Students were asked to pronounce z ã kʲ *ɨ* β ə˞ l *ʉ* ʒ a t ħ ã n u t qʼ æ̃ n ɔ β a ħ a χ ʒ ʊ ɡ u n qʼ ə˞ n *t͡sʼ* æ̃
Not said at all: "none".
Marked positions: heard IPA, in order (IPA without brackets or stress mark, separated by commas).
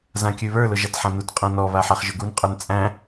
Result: ʉ, ʊ, t͡sʼ